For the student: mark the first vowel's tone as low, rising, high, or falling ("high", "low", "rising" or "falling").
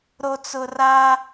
low